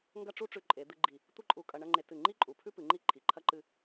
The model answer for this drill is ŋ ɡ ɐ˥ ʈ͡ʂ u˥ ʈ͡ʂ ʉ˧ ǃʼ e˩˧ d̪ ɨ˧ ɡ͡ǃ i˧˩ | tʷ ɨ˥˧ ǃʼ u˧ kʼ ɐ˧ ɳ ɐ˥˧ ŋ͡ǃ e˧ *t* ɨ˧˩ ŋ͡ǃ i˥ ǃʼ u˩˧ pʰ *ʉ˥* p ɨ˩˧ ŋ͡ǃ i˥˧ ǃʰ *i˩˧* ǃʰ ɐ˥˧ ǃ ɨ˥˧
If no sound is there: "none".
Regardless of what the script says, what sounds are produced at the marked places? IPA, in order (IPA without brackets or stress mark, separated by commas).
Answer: t, ʉ˥, i˩˧